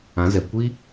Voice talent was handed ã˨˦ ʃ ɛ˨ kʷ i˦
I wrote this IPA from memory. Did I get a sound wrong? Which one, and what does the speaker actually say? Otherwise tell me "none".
ʃ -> z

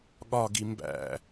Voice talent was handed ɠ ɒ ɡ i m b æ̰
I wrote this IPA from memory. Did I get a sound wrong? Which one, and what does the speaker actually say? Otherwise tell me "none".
none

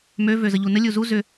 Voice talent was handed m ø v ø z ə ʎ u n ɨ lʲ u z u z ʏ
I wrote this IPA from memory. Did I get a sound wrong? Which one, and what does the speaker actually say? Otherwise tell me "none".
ɨ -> ə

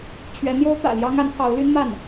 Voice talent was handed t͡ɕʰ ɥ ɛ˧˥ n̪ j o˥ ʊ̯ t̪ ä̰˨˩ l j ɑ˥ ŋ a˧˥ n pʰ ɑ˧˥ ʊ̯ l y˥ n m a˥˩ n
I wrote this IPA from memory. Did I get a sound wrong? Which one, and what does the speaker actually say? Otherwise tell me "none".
none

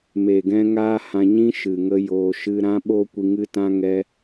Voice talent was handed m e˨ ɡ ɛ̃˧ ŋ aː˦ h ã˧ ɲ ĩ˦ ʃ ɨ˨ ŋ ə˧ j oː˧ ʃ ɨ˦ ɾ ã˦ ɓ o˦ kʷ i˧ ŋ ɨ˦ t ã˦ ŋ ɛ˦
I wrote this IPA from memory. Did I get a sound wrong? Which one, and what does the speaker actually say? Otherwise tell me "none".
none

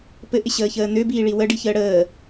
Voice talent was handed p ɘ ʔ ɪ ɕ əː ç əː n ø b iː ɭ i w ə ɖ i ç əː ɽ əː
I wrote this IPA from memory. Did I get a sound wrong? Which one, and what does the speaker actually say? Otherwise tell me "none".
none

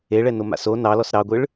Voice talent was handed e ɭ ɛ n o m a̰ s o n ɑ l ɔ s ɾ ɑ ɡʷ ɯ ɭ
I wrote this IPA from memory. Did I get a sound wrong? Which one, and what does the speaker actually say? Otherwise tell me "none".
none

